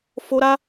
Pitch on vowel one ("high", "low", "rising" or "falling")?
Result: high